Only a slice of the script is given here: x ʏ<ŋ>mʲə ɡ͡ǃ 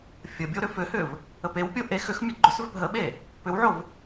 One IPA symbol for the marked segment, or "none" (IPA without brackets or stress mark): x